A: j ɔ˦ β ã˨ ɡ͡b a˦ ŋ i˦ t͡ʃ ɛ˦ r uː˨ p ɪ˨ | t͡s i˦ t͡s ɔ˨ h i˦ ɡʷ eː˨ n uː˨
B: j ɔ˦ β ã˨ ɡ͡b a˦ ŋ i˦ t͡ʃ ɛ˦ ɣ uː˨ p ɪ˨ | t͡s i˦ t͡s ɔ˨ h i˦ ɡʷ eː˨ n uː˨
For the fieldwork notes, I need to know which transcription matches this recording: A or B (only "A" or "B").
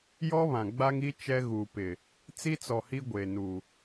B